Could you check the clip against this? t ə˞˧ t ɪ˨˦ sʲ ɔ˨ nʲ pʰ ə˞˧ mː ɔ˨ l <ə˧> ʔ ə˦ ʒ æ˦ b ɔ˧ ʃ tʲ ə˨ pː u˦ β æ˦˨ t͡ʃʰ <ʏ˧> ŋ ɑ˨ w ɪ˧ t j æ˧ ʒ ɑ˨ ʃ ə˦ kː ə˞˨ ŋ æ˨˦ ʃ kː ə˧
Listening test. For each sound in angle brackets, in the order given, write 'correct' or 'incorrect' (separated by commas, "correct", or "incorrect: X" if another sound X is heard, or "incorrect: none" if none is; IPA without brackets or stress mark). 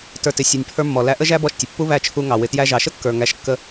incorrect: æ˧, incorrect: u˧